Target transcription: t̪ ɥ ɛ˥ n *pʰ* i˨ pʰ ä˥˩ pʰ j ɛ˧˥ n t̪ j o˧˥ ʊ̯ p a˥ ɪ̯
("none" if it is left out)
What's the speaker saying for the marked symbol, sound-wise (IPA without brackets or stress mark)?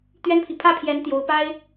pʰ